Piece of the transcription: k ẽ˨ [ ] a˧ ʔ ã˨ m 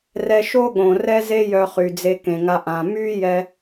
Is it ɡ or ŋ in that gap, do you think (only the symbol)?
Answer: ŋ